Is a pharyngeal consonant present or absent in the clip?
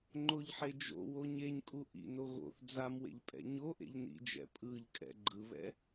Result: present